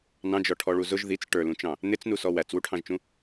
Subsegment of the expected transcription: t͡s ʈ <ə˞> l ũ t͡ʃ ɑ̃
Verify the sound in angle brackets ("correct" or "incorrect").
correct